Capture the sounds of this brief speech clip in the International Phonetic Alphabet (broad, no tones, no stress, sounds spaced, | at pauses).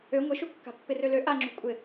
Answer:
ø ŋʷ ɪ ʃ u kː a̤ pː ɪ r ø l ø ʔ a ŋ͡ǁ ṳ kʷʼ ɪ